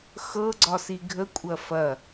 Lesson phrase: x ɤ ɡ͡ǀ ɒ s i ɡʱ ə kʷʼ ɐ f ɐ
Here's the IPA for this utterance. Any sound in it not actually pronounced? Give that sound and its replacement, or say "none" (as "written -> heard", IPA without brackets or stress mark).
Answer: none